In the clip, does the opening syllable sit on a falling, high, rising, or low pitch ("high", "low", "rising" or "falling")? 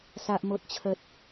high